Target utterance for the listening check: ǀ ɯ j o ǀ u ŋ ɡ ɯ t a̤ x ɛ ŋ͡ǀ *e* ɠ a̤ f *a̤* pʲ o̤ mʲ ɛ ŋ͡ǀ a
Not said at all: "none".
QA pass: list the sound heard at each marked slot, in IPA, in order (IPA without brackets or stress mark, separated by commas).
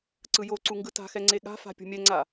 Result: e, a̤